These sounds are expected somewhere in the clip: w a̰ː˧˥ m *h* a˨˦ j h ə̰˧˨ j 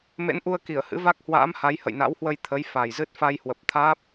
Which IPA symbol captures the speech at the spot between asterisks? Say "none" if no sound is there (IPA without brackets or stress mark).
h